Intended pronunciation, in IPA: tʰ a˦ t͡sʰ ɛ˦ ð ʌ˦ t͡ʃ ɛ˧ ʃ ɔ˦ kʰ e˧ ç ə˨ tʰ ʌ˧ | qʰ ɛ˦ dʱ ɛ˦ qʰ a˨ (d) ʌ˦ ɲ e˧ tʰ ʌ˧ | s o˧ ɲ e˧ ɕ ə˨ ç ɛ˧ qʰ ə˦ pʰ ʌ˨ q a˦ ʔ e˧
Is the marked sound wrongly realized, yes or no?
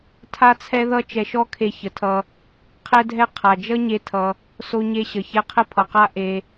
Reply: yes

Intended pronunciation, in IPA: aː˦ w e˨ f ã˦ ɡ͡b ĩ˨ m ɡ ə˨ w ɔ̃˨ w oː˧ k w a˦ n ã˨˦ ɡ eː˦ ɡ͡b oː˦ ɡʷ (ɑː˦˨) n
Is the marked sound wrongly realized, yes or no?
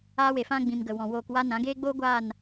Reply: yes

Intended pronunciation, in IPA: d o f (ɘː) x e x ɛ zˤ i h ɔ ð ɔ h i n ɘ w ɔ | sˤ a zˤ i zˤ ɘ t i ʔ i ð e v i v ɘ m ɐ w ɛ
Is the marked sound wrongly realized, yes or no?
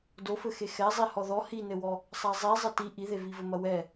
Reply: yes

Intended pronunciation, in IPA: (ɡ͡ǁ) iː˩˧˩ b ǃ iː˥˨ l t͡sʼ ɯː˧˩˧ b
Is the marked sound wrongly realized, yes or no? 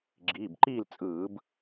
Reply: no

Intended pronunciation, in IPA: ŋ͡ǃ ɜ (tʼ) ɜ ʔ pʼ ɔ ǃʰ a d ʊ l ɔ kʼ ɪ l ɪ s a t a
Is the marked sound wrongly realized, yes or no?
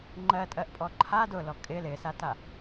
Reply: no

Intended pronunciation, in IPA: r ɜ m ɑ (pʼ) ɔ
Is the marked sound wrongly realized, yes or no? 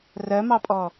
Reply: no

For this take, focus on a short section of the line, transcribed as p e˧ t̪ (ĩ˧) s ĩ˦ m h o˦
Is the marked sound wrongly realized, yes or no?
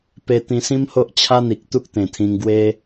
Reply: no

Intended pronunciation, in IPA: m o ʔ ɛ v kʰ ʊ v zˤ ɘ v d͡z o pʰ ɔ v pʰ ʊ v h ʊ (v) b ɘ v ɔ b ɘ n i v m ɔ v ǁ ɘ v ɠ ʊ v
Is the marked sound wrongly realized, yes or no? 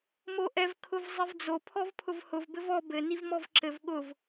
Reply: no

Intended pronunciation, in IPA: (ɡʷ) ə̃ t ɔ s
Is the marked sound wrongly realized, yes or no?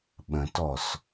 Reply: yes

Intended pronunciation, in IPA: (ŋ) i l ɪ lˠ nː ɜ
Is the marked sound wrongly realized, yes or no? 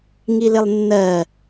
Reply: no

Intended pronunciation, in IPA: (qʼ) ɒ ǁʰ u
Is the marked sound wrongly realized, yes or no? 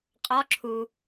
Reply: no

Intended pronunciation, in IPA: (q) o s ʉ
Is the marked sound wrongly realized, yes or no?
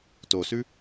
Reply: yes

